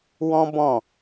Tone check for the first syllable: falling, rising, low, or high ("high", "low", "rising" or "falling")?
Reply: high